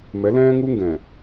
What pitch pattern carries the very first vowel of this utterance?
rising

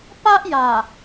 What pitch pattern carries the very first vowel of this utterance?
high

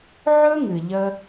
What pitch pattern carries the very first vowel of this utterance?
high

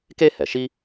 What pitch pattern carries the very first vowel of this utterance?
high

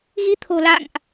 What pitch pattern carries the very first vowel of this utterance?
rising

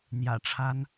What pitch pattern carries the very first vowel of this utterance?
low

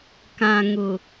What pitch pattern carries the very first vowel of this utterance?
low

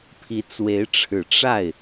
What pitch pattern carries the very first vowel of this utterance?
rising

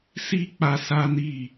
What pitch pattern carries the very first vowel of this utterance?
high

